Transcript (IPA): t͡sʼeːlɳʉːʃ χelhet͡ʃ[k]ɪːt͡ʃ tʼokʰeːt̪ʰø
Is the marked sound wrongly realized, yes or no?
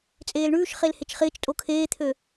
yes